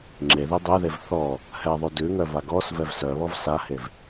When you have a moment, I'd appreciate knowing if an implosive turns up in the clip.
no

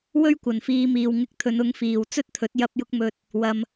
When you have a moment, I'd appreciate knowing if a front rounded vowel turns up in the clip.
no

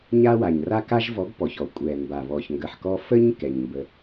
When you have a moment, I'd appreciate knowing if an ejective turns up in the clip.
yes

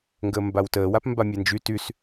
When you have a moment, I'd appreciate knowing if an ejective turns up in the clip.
no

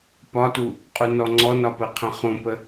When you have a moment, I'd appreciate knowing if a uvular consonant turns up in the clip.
yes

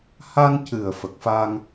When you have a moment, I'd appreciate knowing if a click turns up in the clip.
no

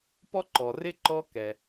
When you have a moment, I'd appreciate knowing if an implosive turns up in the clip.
no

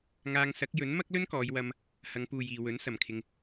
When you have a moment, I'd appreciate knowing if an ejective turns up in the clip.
no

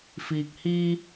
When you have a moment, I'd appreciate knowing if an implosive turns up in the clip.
no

